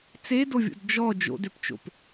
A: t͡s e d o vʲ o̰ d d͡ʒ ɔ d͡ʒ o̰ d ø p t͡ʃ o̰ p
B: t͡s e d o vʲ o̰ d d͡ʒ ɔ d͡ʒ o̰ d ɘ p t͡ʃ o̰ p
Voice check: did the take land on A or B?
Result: A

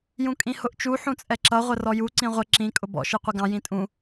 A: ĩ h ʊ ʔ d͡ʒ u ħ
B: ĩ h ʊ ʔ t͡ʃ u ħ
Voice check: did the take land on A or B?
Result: B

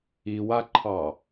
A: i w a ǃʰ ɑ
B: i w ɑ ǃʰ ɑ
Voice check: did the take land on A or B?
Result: A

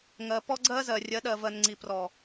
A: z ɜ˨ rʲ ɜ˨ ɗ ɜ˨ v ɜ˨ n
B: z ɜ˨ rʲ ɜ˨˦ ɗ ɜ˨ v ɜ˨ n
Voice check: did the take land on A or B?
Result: B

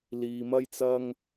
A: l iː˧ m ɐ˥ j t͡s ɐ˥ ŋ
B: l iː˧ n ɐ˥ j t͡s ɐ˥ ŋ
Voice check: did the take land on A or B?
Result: A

